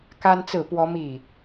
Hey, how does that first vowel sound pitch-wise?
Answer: high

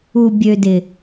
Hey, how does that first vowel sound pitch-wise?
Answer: low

